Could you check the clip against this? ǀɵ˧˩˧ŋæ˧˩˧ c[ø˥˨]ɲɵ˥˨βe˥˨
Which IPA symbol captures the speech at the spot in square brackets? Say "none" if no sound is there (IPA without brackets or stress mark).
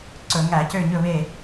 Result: ø˥˨